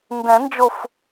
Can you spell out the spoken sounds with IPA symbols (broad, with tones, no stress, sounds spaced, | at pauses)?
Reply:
n d ɛ̃˨˩˦ n d͡ʒ o˧˩ f